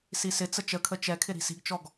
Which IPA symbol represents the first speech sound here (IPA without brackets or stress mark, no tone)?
s